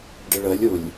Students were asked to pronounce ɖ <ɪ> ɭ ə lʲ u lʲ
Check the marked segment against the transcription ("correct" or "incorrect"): correct